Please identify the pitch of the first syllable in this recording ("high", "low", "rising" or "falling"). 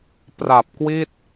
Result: low